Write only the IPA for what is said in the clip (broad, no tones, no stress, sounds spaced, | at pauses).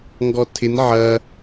ŋ ɡ ɔ tʰ ɪ n ʕ ɐ